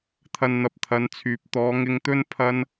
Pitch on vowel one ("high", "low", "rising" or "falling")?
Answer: low